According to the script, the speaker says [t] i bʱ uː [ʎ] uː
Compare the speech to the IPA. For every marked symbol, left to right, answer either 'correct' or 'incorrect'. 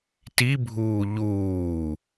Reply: correct, correct

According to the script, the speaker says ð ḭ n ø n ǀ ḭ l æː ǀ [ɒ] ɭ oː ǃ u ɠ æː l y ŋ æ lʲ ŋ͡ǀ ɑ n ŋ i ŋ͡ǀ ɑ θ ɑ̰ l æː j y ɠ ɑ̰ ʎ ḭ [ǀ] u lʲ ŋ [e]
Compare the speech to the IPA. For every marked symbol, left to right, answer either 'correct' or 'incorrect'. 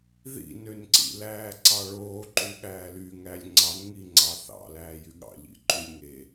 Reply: incorrect, incorrect, correct

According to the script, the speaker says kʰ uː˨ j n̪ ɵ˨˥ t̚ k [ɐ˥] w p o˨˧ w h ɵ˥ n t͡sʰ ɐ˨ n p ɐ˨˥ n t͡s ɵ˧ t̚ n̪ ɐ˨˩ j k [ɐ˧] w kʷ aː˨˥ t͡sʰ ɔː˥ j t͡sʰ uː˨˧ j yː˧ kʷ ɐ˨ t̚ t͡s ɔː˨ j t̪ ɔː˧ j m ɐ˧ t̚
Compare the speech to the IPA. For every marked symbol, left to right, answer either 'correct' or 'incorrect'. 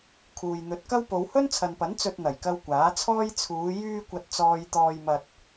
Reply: correct, correct

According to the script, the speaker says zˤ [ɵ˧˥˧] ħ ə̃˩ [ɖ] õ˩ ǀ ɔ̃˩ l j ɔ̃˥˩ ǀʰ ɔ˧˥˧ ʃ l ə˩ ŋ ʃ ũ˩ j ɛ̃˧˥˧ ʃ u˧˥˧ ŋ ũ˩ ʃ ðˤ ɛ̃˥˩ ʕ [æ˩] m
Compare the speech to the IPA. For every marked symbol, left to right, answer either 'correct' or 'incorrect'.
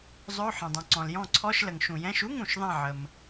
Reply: correct, incorrect, incorrect

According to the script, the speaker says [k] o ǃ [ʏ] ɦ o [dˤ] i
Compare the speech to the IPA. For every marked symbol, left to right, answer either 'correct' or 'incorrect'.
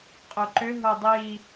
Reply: incorrect, correct, correct

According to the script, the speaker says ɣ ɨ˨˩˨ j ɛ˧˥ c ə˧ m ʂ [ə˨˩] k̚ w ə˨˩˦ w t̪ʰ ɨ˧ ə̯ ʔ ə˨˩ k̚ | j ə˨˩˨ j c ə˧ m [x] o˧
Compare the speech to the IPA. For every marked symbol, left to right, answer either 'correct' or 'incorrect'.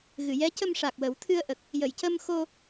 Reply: incorrect, correct

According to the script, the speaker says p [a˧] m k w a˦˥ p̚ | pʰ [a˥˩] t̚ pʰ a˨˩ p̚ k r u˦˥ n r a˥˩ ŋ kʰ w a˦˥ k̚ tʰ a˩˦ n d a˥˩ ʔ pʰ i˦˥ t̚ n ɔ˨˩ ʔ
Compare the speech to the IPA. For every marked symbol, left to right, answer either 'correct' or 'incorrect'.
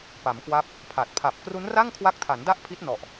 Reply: incorrect, incorrect

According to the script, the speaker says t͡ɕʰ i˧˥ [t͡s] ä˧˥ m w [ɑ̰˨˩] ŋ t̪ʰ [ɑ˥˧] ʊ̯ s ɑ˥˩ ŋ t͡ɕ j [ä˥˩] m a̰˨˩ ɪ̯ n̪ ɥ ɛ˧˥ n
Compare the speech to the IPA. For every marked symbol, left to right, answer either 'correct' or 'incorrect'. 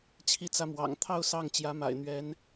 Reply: correct, correct, correct, incorrect

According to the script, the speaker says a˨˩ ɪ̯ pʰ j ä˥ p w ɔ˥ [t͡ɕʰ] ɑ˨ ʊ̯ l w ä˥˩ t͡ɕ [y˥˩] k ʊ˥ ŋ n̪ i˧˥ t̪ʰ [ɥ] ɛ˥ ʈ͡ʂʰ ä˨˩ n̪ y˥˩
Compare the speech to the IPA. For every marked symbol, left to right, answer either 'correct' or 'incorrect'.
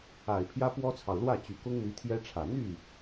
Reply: incorrect, incorrect, incorrect

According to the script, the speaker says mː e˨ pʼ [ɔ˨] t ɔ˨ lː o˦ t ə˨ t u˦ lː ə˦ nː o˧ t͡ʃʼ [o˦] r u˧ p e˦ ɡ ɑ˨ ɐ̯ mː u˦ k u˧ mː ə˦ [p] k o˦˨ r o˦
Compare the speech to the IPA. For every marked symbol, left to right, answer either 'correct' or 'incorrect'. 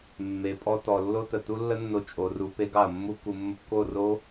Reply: incorrect, incorrect, correct

